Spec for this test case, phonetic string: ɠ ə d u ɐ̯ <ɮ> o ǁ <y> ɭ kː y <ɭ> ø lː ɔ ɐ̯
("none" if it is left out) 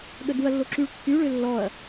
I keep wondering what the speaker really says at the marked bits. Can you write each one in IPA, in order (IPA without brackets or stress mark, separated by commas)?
lː, y, ɭ